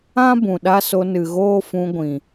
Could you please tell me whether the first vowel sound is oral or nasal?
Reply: nasal